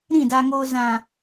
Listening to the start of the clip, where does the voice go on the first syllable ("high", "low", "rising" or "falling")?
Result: falling